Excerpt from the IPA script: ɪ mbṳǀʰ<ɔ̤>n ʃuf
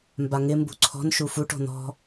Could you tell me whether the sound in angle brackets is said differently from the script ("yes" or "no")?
no